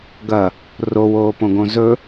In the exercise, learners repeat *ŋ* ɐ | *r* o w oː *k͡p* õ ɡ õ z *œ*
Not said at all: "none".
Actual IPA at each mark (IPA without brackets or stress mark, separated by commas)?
ɡ, r, p, ɵ